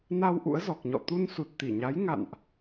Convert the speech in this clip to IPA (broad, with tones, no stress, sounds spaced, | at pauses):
n a˧ w ʔ ṵ˧˥ ə̯ z ɔ˨˩ k̚ ɲ ɔ̰˧˨ t̪ u˧ n s u˨˩ t̚ t̪ i˧˩ ɲ a˨˦ j ŋ a̰˧˨ n ʔ